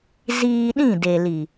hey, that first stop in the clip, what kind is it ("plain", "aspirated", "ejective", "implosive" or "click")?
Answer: implosive